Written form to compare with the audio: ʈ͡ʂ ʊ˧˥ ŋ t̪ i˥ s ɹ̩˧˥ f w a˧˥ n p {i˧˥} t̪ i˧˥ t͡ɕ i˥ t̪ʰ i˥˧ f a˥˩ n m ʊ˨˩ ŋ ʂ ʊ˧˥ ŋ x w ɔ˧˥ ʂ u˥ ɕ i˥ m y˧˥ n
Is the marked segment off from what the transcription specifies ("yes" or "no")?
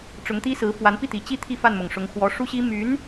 yes